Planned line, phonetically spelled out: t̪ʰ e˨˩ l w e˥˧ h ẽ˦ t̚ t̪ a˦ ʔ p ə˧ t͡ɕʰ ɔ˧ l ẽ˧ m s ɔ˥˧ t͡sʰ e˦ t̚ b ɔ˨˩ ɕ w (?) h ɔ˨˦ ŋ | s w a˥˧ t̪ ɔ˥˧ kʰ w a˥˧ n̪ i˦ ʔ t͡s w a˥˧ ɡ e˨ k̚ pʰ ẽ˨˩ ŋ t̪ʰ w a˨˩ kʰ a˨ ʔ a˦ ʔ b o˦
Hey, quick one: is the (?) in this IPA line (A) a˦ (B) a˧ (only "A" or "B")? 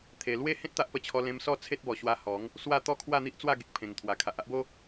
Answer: B